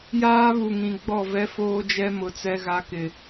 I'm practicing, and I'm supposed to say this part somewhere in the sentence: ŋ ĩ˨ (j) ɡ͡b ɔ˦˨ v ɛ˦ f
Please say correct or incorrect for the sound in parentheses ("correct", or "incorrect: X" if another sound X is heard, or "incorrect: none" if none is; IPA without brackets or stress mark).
incorrect: none